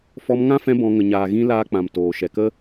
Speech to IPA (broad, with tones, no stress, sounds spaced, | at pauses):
f ɔ˧ m ŋ ã˦ f ɛ̃˧ b ɔ̃˨ ŋ ə˨ ɲ aː˨ ɣ ĩ˧ l aː˧ k͡p ã˨ m t oː˨ ʃ ɛ˨ k ə˦